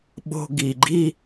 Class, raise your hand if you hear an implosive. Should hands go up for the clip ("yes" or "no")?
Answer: yes